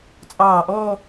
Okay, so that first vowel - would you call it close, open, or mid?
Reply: open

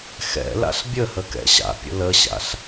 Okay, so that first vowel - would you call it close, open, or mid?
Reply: mid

